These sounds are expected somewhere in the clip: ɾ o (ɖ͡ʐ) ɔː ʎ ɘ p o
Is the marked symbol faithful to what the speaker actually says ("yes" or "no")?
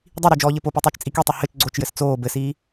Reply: no